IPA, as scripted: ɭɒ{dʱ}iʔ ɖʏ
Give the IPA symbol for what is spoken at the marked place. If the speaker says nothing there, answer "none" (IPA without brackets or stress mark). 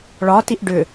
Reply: t